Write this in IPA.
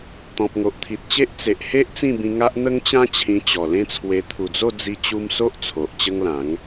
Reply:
t̪ɔ̃˨p̚ŋo˨ʔt̪ʰi˨t̚t͡ɕe˦ʔ t͡se˨ʔhe˦ʔ t͡sĩ˥˧bĩ˧ŋa˦ʔ n̪ə˦ŋt͡ɕã˦ t͡ɕʰĩ˧t͡ɕɔ˨˩lẽ˦t͡sʰwe˧ t̪ʰu˨˩d͡zo˥˧ d͡zi˦t͡ɕu˦m so˦ʔ t͡sʰo˨ʔt͡ɕə˦ŋlã˨˦ŋ

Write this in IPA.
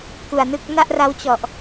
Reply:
ku˨˩a̯nɯ˥˩k̚ na˥˩ʔra˦˥wt͡ɕɔ˨˩ʔ

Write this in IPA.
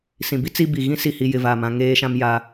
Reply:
sĩ˨ bi˦ t͡si˦bi˨ ɣĩ˦si˨hi˨ jɪ˦˨va˦˨mã˦ ŋeː˦ʃã˦m ja˦

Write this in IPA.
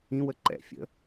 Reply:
ĩwə ǃɛ̰ fʲə̰

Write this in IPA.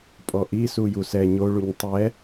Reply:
pʼɔʔi sujusɛ ɲo ɭuɲtˤɛ

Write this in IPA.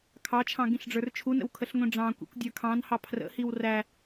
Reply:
kʰɑt͡ʃʰɑ̃ ɡĩɬɖ͡ʐə˞rt͡ʃʰunə̰w kʰəɬŋʷĩɖ͡ʐɑ̃kʷḭkʷ dʲə˞kʰɑ̃nhɑ pʰrə̰hiw ræ

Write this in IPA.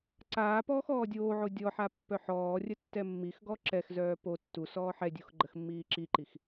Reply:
ǀaː pɔːxɔːdʲoːʕo dʲɔħa pːœħɔːrʲə tːɛmːixɡɔ ǁɛxzœː po tːu sɔːħɛdʲux ɡ͡ǃəxmːiːǁiǃix

